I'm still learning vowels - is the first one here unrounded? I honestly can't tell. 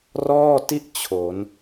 no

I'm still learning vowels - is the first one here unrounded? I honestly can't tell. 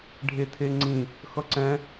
yes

